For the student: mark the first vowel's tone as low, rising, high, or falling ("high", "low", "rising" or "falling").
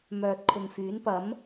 low